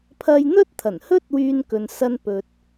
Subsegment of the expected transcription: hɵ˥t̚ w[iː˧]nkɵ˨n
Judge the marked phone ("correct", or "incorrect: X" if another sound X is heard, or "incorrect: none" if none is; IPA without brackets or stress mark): incorrect: yː˧